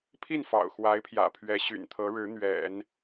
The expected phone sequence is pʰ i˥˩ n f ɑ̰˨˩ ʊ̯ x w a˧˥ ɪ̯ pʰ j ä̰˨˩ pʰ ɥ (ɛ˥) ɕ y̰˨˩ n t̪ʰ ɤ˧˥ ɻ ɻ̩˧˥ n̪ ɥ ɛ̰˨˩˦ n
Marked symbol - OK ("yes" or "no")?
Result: no